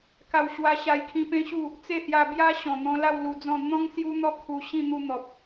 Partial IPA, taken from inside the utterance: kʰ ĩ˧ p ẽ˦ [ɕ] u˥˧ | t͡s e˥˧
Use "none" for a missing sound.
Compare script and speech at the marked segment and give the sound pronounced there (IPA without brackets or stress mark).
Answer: ɕ